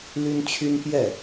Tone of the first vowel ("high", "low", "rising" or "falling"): high